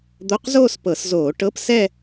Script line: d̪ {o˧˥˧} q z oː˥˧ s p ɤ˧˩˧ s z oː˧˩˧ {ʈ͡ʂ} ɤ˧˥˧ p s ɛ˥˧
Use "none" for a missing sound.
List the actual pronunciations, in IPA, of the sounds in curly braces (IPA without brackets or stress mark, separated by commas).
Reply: o˧˥˧, ʈ